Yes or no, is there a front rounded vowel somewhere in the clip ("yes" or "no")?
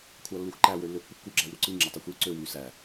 yes